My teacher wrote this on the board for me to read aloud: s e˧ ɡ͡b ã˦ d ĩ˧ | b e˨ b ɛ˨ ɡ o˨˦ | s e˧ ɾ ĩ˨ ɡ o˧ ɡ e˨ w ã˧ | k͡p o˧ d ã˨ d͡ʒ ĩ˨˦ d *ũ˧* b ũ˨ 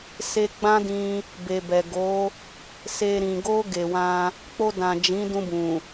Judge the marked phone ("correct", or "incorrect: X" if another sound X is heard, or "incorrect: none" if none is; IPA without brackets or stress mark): correct